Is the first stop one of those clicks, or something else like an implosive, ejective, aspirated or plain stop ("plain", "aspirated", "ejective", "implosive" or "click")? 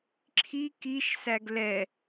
click